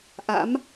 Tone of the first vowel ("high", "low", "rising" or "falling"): rising